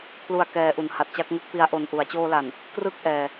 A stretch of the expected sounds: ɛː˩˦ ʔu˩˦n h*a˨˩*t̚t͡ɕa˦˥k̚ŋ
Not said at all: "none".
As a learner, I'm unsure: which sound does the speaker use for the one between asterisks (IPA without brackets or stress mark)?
a˨˩